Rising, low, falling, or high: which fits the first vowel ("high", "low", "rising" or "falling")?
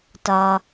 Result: low